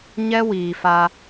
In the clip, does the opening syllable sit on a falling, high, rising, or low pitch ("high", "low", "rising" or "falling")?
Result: high